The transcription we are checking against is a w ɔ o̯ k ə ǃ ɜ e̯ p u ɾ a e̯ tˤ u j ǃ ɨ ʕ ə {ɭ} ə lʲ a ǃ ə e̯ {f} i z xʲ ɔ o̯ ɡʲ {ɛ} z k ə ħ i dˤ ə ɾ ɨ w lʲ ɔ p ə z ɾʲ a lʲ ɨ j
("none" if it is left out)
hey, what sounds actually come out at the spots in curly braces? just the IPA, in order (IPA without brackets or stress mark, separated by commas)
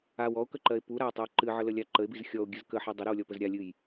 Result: l, b, ɨ